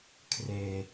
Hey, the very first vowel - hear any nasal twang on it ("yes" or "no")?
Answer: no